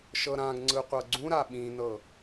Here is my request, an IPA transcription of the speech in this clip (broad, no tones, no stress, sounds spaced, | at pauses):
ʃ ɤ ɾ ã ɡ ŋ͡ǀ ɯ qʷ ɤ ɡ͡ǀ ũ ɾ a ɓ ĩ n ɤ